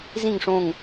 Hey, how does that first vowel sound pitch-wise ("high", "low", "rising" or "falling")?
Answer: falling